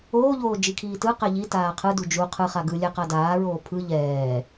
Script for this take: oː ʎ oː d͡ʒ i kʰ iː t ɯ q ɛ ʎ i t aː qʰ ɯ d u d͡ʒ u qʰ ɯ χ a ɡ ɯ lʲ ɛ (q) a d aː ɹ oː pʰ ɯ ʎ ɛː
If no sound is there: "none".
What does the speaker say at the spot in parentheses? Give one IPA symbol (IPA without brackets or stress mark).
q